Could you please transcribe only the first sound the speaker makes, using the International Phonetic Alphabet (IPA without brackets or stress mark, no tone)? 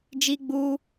d͡ʒ